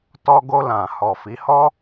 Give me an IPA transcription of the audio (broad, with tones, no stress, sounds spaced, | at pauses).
t ɔ˧ ɡ o˧ l ã˨ h ɔ˨ f i˨˦ h ɔ˦